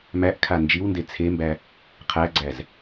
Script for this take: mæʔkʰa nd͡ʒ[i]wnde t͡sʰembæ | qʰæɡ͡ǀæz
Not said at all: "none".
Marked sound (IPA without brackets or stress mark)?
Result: i